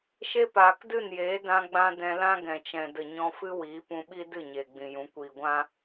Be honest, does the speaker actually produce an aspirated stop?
no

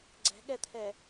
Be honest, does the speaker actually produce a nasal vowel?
no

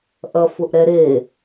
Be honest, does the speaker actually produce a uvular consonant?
no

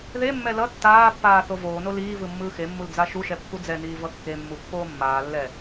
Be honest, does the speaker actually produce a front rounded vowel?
no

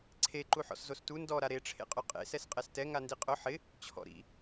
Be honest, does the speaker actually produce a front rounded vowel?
no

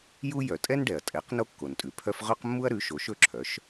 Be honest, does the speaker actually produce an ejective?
yes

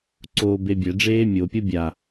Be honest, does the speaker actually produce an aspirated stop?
no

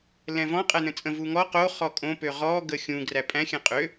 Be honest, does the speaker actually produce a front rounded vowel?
yes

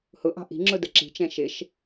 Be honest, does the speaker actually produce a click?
yes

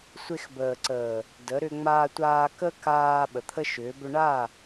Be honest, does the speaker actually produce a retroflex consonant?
yes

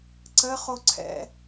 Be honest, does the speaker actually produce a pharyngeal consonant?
no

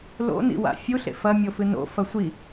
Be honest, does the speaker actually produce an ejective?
no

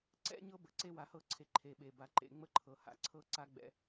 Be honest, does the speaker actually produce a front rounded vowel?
no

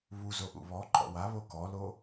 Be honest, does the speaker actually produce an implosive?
no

